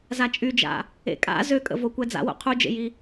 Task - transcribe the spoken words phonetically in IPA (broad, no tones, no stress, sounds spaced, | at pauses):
z a t͡ʃʼ y d͡ʒ a̰ | ḛ kʼ a̰ z ø kʼ ə̰ v o kʷ ɛ d͡z a̰ w o̰ qʰ u d͡ʒ ḛ j i